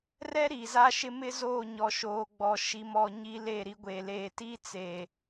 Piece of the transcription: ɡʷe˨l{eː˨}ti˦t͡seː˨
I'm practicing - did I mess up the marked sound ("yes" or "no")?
no